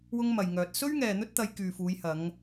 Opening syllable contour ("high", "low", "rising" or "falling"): high